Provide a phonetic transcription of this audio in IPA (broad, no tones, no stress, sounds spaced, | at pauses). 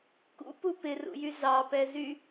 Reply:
k ṵ p u p ɪ r ṵ j y z ɑ p ɛ z y